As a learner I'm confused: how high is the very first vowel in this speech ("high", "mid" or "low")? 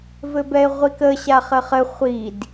mid